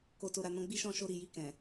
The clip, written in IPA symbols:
k o˨ t o˨ ɾ a˨ n ɔ̃˧ ɡ͡b i˦ ʃ ɔ̃˦˨ ʃ o˧ ɾ i˨ j i˧ k ɛ̃˨

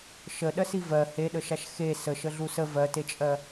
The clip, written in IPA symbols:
ʃ ə ɗ ɜ s i v ɜ h e ɗ ə ʃ a ʃ x e s ə ʃ ə ɮ u s ə v ɜ t e t͡ʃʼ ɜ

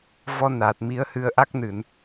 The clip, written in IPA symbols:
v ɔ˧ n aː˨˩ t̚ m i˨˦ ə̯ h ɨ˧ ə̯ ʔ a˦˥ k̚ n ɨ˧˩˨ n

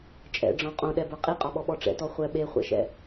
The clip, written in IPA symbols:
t͡ʃʼ ɛ̰ ɖ͡ʐ ɔ̃ qʼ õ ɗ ɛ b ə˞ qʼ i qʼ ɒ ɓ ɔ ɓ ɔ ʈ͡ʂ ɛ̰ t ɔ χʷ ɛ ɓ e χʷ ɛ̰ ʃ ɛ̰

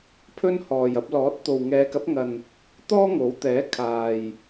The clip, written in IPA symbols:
pʰ ɵ˥ n h ɔː˨ j ɐ˧ p̚ l ɔː˨˥ t̚ t̪ o˨ w ŋ ɛː˨˧ k ɐ˨˥ p̚ ŋ ɐ˨ n | t̪ ɔː˥ ŋ o˨˥ w t̪ ɛː˨˥ kʰ aː˨ j

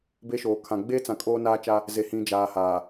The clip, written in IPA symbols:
b e˦ ʃ oː˨ kʰ ã˨ ɡ͡b e˦ t͡s ã˨ kʼ oː˦ n aː˦ t͡ʃ a˦ | z e˨ h ĩ˨ d͡ʒ aː˨ h aː˨

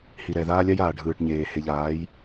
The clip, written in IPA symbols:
h i˨ ɾ ɛ˨ ð aː˦ lʲ a˦ j aː˨ ɖʱ ɯː˨ ʈ ɲ eː˨ h e˨ ʎ aː˨˦ j

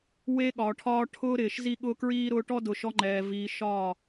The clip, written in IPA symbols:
w e˦ ɠ ɒː˨ ʈʰ ɒː˦ ʈʰ ʊː˦ ɾ ɪː˨ ʃ z i˦ ɠ ʊː˦ k ɹ iː˦ ɾ ʊː˦ ʈ ɔ˦ d ʊ˨ ʃ ɔ˦ ŋ͡ǃ ɛː˨ v iː˨ ʃ ɒː˦˨

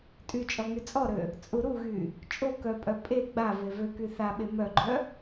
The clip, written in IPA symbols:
tʼ y t͡ʃʼ ɔ ŋ y t͡sʼ ɔ ɾ ø | t͡sʼ u ɾ u ɣ y | t͡ʃʼ o k œ pʼ œ pʼ e ɡ͡b a v e v ø k y θ a ɓ e m œ ɡ͡ǃ œ

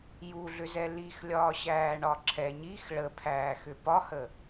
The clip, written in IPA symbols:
j u ɮ ʏ z ɛ l i x lʲ ɒː ɕ æː ɳ ɒ ǁʰ ɛ ɲ i x ɭ ə pʰ æː x ʏ p ɒ h ə

